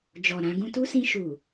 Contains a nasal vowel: yes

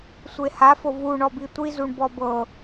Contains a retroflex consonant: yes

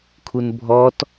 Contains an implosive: no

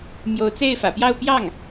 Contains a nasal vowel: no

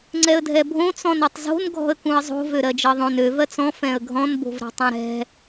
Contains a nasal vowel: yes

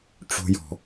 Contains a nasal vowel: no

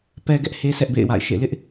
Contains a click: no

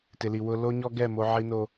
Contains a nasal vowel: no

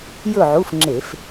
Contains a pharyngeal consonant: yes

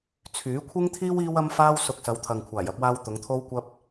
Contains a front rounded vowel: yes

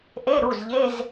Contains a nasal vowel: no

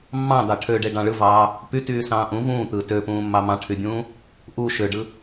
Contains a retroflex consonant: yes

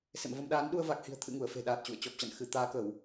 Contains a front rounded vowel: no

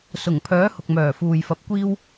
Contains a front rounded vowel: yes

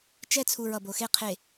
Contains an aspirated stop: yes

